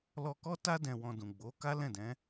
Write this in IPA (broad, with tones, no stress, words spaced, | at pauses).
lɔ˧kɔ˦ta˦ dɛ̃˧wɔ̃˧dũ˨ ɡ͡bo˨˦ka˦lɛ̃˦˨dɛ̃˨˦